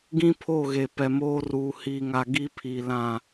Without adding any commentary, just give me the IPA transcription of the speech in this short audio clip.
ɡ ĩ˦ pʰ o˦˨ ɣ e˨ p ɛ˨ m oː˦ r uː˨ h iː˨ ŋ a˨ ɡ i˦ pʰ i˨ l ã˦˨

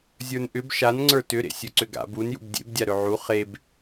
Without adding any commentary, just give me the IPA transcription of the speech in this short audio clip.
zʲ ə˞ n ʔ ʏ b ʃ a n ŋ͡ǀ ə˞ t ʏ ɾ ḛ sʲ ɵ ǀ ʏ ɡ a̰ b u n j ṵ b dʲ ḛ b dʲ a ɾ ɵ ʕ u χ e b

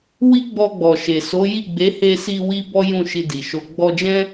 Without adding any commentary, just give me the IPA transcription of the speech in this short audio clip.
w i˦ ɡ͡b ɔ˧ ɡ͡b ɔ˨ ʃ e˨ s o˨˦ j i˦˨ ɡ͡b e˨˦ h e˧ s i˧ w i˦ b ɔ˦ j ũ˦˨ ʃ i˧ d i˨ ʃ o˧ ɡ͡b ɔ˧ d͡ʒ ɛ̃˦

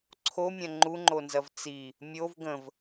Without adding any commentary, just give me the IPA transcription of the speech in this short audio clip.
ǀʰ o mʲ ɐ̃ ŋ͡ǃ u ŋ͡ǃ o n z ɐ v t͡s i | mʲ o v ɡ ə̃ v

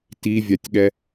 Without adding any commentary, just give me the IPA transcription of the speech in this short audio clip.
t i vʲ a tʲ ɠ ɛ

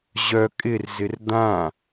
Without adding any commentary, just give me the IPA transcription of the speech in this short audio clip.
ʑ œ kʼ ɪ r z ɪ r d̪ ã

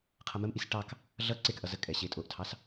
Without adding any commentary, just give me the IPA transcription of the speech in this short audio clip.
qʰ ʌ m ə m ʔ i s ʈ ɑ k | ɮ ʌ ǀ e k ʔ ʌ z ə kʼ ɛ ɕ e tʼ o ʔ tʰ ɑ s

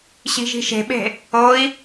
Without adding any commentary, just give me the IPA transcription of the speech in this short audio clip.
ɕ i̤ ʒ i̤ ʃ e̤ ɓ e̤ | o i̯

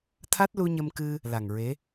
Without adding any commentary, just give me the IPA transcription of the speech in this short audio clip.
t̪ʰ a˦˥ t̚ l u˧ ɲ ə˧ m k ɨ˧ | l a˨˩ ŋ ɹ e˧˥

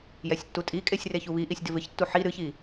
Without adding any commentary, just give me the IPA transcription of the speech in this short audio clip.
j ɛ sʲ tː u tʼ i kʼ e sʲ r e ç u β i ʔ i sʲ d ɪ v ɪ ç tː u ħ i ɾ ɨ ç i

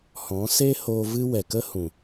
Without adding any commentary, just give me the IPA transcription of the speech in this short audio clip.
h ɔ̃˨˦ s e˦ h o˧ v ɨ˦ w ɛ˨ k ə˦ h ũ˨

